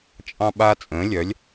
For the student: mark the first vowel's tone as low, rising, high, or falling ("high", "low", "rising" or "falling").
high